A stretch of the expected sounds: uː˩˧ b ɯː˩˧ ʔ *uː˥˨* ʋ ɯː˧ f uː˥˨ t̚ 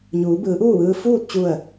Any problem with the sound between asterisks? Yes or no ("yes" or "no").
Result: no